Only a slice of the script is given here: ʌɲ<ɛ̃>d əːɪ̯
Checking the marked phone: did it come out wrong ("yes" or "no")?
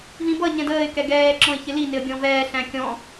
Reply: no